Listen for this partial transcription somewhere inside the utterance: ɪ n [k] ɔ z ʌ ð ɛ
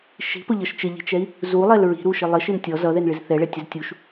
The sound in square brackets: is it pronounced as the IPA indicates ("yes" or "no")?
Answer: no